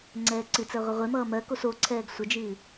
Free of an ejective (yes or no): yes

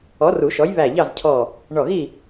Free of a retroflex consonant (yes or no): no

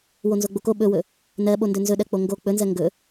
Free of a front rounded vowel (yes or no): yes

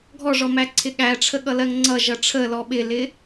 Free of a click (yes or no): no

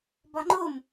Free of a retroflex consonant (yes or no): yes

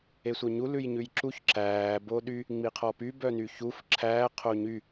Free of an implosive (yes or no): no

